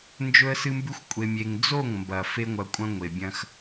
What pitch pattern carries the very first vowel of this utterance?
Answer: high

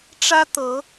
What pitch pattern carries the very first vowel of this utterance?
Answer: high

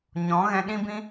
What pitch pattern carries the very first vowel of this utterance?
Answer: rising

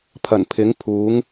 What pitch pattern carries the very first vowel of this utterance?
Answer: low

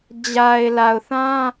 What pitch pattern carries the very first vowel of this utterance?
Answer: low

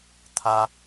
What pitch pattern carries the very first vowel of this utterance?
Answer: low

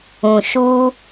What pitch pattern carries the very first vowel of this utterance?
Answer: low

